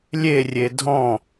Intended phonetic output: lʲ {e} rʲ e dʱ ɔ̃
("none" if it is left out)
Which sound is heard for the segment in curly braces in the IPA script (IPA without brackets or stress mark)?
e